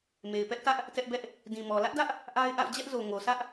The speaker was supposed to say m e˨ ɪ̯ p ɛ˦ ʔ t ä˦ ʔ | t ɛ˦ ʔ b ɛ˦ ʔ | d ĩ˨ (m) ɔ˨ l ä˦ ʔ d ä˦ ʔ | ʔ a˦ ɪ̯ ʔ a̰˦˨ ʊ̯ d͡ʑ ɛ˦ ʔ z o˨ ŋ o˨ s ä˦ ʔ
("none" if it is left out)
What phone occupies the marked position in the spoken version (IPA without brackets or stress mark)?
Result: m